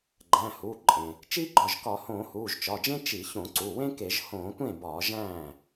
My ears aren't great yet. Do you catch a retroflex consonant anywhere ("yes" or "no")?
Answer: no